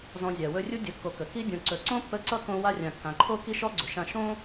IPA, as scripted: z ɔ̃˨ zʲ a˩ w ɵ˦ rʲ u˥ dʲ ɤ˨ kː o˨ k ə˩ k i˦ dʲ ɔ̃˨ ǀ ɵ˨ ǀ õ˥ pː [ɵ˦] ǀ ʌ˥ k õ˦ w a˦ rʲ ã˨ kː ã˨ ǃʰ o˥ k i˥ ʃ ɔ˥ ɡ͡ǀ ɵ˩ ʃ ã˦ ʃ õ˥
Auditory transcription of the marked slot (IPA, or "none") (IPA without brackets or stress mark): ə˦